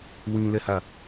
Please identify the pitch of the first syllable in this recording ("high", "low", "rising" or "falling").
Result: low